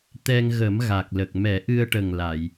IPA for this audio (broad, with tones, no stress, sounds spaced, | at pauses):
t̪ ɛ˧ ŋ ɣ ə˨˩˦ m ɣ a˨˩ k̚ l ə˨˩ k̚ m ɛ˨˩˦ ʔ ɨ˧ ə̯ ʈ ə˨˩ ŋ l a˨˩˨ j